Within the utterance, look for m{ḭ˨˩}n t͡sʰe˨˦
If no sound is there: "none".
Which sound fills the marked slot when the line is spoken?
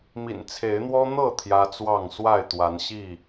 ḭ˨˩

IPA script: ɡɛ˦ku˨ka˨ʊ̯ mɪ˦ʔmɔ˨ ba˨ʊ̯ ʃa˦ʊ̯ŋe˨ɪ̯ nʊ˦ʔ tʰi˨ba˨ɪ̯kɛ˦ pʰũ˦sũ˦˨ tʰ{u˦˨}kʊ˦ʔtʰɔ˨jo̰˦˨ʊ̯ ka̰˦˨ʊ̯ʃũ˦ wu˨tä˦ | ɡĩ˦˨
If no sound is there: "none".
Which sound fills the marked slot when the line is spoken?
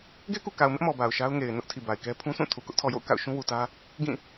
u˨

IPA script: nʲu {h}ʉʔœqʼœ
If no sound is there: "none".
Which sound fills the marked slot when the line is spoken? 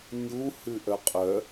h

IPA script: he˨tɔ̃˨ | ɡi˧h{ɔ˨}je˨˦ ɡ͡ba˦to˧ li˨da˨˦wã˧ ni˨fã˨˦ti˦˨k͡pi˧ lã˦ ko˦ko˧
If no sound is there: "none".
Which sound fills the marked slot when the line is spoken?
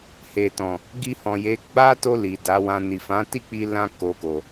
ɔ̃˨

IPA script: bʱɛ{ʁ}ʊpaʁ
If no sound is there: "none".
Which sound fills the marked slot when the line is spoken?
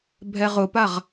ʁ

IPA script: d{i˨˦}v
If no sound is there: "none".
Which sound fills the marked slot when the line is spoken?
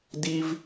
i˦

